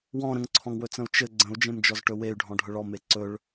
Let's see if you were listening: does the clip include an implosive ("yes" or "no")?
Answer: no